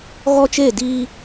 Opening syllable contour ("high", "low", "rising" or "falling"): high